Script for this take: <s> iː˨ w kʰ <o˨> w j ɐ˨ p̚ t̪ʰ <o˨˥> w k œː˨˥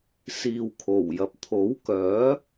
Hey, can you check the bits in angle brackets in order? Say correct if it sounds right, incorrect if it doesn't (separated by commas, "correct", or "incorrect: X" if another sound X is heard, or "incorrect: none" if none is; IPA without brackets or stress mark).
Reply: correct, incorrect: o˨˩, correct